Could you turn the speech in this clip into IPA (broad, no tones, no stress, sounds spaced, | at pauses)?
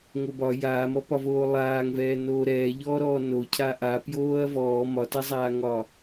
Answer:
ŋ o b ɒ j aː m ɔ p ɒ v oː lˠ aː ŋ v ɛː n oː ɾ ɛː ʎ ɔː ɾ ɔː n o cʰ a ʔ a p j oː ɐ̯ v ɔː m ɒ t a zˤ aː ŋ ɒ